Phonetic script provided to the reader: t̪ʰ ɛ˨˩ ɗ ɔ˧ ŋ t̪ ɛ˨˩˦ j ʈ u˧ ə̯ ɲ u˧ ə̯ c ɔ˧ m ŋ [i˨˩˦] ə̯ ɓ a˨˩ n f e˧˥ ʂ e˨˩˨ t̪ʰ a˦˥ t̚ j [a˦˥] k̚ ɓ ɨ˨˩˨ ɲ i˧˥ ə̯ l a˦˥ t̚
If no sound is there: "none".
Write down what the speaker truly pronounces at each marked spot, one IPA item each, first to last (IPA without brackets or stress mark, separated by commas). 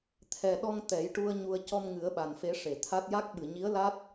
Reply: ɨ˨˩˦, a˦˥